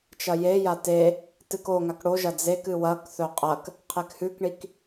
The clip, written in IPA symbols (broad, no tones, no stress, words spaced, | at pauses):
t͡ʃɐjeja te | tɨkoŋak ɽoʒɐ d͡zekɨ wɐkθɵ qʼɐk | qʰekhʉkɳik